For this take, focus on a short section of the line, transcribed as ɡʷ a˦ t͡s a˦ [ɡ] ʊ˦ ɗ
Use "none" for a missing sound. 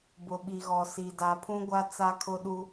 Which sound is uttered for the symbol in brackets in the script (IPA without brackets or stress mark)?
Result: kʰ